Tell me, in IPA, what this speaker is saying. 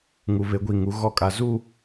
ŋu˨βe˨˦ɡʷi˨ŋu˨˦ ɣɔ˦˨kʼa˨ zu˦˨

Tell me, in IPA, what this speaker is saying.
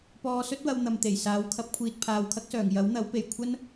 pɔː˧sɵ˥t̚wɐ˧w n̪ɐ˨m t̪e˨˩j saː˨˥wkʰɐ˨˥p̚kʷʰiː˨t̚ pʰaː˨wkʰɐ˥k̚sœː˨˩ŋ jɐ˨˥wn̪ɐ˨˥wpe˨˩j kʷʰɐ˥n

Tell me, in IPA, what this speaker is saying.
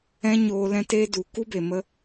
ɛ̃˦ ɲoː˧ lɛ̃˦teː˦du˨˦ ku˦be˨ mə˦

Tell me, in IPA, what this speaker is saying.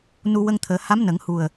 nu˧ wə˧ŋt̪ʰəː˨˩˦ ha˧˥m nə˨˩˦ŋ hu˨˩ə̯

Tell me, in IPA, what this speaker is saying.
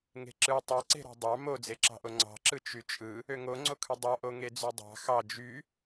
ŋe̤ǁɯ tˤɑǀe̤ɾɑ̤ dˤɑ mod͡zeǁɑ̤ʔo ŋ͡ǀɑ̤ǁɯ t͡ʃyt͡ʃʼɯ | øŋoŋ͡ǀokʰɯ dˤɑʔo ŋed͡zydˤɑ̤ xɑ d͡ʒy

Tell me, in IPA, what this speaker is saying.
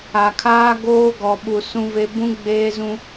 a˨kʰaː˦ ɡoː˦ɡɔ˨ɓu˨ sũ˦ve˦ bũ˦ ɡ͡beː˦zũ˦

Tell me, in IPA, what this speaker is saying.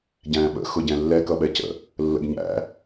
ɟæ̃ːɓə̰ xʊɟɛ̃lːɛ kʌɓɛcə̰ | lːə̰ɡɲæ̰

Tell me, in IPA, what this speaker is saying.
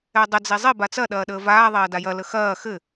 ɛdˤə d͡zezˤe bat͡sɐ ɗɐːɗəːvaː ðˤɐːdajɐ ləxɐː xɘ

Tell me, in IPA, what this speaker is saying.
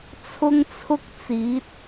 t͡sʰʊ˥ŋt͡sʰʊ˥k̚t͡siː˨˥t̚

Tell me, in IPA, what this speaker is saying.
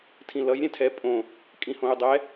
tʰĩlʌj ɾʲɛ̃tʰɛ pʼõ | kʼĩhõy̯dˤɛ

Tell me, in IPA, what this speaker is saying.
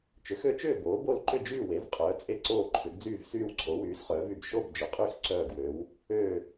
t͡ʃʏ˩˥xø˩˥t͡ʃʏː˥˨ boː˩˥bo˥˨l ǃʏ˥˨d͡ʒyː˥˨ we˩˥vqʼœː˩˥ t͡sʼe˥˨ǀoː˥˨ǃʰʏ˩˥ɡ d͡zyː˥˨vsyː˥˨wǀʰo˩˥ wyː˩˥sχœː˩˥vy˥˨b ʃo˥˨bd͡ʒʏ˩˥qʼy˥˨x ǀœː˥˨ɡwø˩˥w | ø˥˨

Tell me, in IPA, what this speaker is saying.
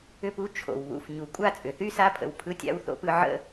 ʏ˦pu˦ t͡ʃʰo̰˩wβṵ˨f ɲu˩kʷʼa˥ t͡sʼʏ˩θy˥sa˦pʰə̰˨w pʰɯ˦tʲa̰˦wθo̰˦pɯ˦ ʕə̰˦

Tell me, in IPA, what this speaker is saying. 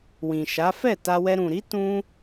wĩ˨ʃa˨˦ fɛ˦˨ta˧wɛ˧ ɾũ˨ɾi˨˦ tũ˦

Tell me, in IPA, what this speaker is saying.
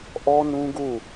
ʔɔ˦nũ˦ɡu˦˨

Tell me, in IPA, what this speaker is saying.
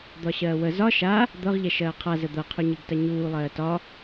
d̪ɒɕɜːwə zɒ ʃa | d̪ɤʁʎɛʃɜː qʰazə d̪ɤqʰuɲiɡta ɲuː lˠɜːtɒ

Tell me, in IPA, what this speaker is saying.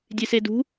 dʲesedṳ

